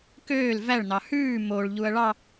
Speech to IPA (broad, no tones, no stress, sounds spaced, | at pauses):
k øː l v æ ɭ n ɑ h ʉː m o ɭ ʎ u ɐ̯ ɭ ɑ